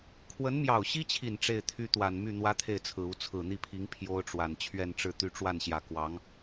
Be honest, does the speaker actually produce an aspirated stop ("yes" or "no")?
yes